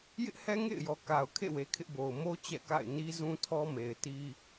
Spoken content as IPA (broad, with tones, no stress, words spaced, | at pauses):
jɪ˦ʔhɛ˦ŋḛ˦˨ɪ̯jɔ˨ ka˨ʊ̯ kʰḛ˦˨we˨ kʰɪ˦ʔbo˨ʊ̯ mo˦ t͡ɕɛ̰˦˨ka̰˦˨ɪ̯ ni˦zũ˦tʰɔ˦me˨ɪ̯ ti˦